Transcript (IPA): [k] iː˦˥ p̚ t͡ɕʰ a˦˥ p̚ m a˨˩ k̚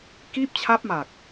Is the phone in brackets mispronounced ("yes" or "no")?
no